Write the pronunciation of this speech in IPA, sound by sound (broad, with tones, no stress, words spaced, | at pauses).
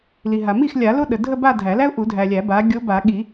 li˨ɦa˨ mi˥˩xlʲa˨˩˦ lo˥ɗə˨dʱə˥˧ ba˥˧dʱæ˨˩˦læ˥ʊ̯ ʔu˨˩˦dʱæ˨lʲæ˨˩˦ ba˨˥ ɡʲo˨˥ba˨˩˦ɠi˨˩˦